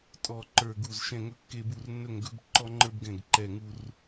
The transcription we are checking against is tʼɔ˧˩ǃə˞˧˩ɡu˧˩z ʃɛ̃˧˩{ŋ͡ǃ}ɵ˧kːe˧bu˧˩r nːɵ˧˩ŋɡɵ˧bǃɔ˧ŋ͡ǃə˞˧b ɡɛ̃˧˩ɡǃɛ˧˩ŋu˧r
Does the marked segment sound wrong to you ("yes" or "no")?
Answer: yes